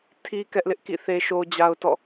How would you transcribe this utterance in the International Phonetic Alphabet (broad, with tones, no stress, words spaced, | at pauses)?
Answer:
tʰi˨ kɛ˦ʔlɪ˦ʔkḭ˦˨ θe˦ʃo˦d͡ʑa˦ʊ̯tɔ̰˦˨